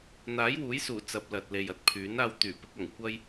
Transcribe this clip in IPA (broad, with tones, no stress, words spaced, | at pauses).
n̪aː˨˥jwuː˨˥jsuː˨˩ t͡sɐ˨p̚lɐ˨t̚ le˨jɐ˨t̚pʰyː˨˥naː˧w t̪yː˨˩pɪ˧k̚ɐ˨˩ŋ kʷɐ˥j